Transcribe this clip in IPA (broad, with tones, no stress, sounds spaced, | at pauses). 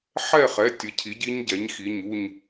ħ ɛ˥˨ χ ɛ˩˧˩ tʲ ə˩˧˩ cʰ i˩˥ ɟ i˦˥ ɲ ɟ ɛ˩˥ ɲ x i˩˧˩ ɲ u˥˨ ɲ